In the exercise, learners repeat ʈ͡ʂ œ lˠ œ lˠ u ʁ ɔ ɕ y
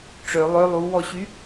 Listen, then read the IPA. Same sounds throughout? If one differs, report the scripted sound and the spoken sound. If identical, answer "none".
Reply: ʁ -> w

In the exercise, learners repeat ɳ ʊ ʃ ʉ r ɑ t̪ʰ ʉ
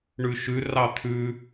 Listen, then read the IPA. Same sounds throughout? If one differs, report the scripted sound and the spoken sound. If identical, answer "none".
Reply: ʊ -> ʉ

